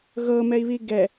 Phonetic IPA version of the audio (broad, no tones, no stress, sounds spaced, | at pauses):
ɣ ɤ m ɛ i̯ β i ɡ ɛ